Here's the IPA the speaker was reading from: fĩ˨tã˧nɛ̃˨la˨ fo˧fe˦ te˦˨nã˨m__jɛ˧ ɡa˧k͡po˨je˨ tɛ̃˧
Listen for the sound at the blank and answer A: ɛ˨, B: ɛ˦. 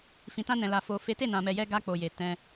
A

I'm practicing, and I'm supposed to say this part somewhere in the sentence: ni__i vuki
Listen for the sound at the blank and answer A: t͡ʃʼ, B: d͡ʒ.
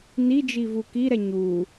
B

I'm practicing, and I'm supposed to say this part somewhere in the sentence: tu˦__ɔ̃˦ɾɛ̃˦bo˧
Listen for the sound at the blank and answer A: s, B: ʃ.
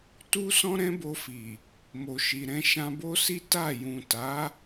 A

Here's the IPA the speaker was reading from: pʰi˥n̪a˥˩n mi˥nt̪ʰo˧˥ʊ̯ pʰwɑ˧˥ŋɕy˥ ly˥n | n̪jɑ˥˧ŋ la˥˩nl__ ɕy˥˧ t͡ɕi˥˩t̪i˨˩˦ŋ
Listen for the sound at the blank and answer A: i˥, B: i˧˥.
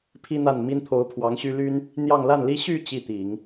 A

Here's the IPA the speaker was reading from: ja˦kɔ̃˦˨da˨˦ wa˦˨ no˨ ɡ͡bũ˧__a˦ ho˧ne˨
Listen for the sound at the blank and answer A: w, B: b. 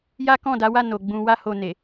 A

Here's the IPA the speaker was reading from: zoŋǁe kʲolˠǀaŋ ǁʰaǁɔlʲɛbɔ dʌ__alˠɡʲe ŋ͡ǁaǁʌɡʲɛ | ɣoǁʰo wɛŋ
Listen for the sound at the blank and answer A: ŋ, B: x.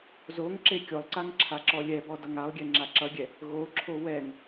A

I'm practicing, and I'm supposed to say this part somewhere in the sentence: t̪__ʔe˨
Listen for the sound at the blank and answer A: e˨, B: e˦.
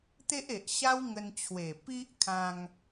B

